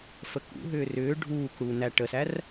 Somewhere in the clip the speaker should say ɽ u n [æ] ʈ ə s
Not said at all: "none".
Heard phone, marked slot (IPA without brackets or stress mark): æ